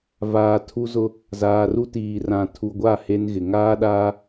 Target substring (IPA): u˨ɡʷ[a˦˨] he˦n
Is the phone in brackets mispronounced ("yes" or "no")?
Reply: no